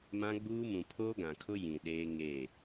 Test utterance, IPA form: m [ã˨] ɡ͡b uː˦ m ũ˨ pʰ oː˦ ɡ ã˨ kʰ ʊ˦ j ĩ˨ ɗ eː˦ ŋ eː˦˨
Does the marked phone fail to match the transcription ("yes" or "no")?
yes